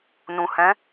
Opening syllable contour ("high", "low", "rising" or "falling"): low